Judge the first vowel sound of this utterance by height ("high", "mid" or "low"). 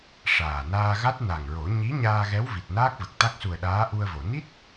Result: low